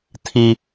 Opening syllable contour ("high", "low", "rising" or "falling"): high